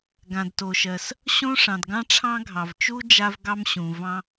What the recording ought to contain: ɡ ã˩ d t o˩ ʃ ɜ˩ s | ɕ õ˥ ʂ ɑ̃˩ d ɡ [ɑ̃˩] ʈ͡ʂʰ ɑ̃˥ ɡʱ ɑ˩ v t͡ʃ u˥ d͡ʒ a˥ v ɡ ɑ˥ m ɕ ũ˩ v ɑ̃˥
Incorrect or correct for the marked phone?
incorrect: ɑ̃˥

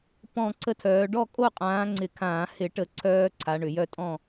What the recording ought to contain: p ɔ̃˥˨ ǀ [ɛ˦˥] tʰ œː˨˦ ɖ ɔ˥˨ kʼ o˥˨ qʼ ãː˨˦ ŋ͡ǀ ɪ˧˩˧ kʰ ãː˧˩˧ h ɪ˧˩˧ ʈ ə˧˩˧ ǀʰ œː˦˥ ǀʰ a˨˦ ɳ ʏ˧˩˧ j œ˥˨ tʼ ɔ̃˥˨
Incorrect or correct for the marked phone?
incorrect: ə˦˥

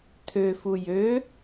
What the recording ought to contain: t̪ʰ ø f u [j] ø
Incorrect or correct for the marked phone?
correct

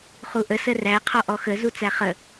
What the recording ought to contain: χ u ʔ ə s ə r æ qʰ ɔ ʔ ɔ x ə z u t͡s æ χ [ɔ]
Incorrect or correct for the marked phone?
incorrect: ə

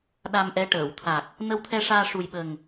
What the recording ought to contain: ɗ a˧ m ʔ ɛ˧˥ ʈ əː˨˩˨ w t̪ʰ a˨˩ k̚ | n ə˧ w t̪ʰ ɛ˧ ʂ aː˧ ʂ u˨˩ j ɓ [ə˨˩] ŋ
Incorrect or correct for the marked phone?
correct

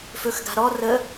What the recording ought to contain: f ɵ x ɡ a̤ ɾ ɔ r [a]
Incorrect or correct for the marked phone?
incorrect: ə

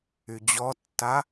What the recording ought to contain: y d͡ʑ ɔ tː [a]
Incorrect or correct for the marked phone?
correct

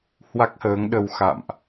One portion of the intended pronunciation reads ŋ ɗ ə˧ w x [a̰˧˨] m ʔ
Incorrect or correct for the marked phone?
correct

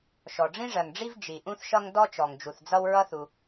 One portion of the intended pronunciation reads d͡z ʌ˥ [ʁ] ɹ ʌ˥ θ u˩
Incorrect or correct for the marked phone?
incorrect: w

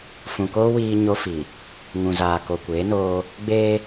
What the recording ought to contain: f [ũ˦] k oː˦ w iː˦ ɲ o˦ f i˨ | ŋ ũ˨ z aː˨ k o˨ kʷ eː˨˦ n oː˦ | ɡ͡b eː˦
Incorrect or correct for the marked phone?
incorrect: ũ˨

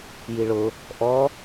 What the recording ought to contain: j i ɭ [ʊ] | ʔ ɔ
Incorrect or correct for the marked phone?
correct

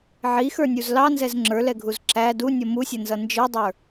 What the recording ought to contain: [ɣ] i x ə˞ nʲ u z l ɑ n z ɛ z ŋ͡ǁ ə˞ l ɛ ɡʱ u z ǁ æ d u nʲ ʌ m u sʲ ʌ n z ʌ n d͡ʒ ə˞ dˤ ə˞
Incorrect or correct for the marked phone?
incorrect: ʕ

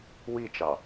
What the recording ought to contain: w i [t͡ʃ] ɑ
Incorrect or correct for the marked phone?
correct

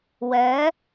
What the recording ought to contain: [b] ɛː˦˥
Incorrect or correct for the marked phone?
incorrect: w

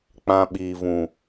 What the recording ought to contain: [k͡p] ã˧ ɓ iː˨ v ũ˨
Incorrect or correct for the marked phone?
correct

